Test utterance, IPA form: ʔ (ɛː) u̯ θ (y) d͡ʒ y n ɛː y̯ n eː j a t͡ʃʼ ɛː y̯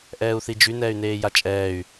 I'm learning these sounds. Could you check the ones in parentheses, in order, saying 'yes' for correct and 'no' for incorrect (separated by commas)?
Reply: yes, no